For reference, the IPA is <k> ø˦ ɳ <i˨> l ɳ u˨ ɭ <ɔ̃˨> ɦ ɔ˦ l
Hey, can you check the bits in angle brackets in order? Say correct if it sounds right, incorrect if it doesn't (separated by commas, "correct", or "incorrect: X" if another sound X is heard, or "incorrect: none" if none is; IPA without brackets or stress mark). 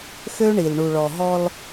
incorrect: x, correct, incorrect: ɔ˨